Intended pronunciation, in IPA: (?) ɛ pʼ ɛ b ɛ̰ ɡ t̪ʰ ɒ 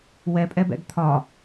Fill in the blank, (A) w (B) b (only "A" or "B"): A